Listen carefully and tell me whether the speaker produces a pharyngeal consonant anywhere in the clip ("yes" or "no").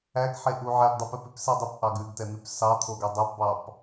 yes